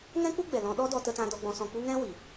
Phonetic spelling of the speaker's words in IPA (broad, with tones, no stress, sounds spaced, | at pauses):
ŋ ɛ̃˦ k͡p u˦ ɡ͡b ɛ˨ l ɔ̃˧ ɗ ɔ˦ d ɔ˧ t ə˧ t ã˧ d ɔ˧ ɡ͡b ɔ̃˧ s ɔ̃˧ k͡p u˦ ŋ ɛ̃˦ w i˨